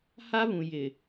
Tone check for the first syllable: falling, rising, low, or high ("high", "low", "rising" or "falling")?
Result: high